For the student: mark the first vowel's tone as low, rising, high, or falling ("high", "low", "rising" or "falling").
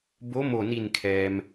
rising